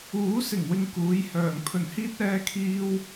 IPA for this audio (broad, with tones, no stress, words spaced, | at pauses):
uː˨˥sɪ˨˩ŋwɪ˨ŋ kuː˨˥jhœː˨˩ŋ pʰɵ˨˩nhiː˥t̚ɛː˧kʰiː˧w